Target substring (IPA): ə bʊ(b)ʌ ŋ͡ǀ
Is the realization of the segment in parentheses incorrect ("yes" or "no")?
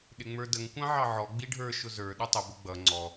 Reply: yes